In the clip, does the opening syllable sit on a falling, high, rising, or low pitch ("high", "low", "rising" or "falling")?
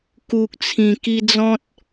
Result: low